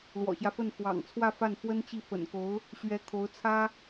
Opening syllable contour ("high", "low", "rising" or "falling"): low